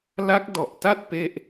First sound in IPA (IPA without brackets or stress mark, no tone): l